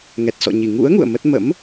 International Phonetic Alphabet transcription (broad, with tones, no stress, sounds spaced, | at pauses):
ŋ ɛ˨˩ t̚ s ɔ̰˧˨ ɲ i˧˩ ŋ ṵ˧˥ ə̯ ŋ ṵ˧˨ ə̯ m ə˦˥ t̚ m ə̰˧˥ m